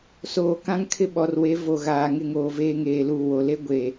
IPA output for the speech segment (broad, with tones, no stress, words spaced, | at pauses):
soː˨kã˦ŋkʰɪ˦ ɓɔ˨rwe˨˦ vo˨ɣaː˨ ŋɪ˦ŋoː˨veː˦ ŋeː˨luː˨wo˨le˦ ɡʷe˨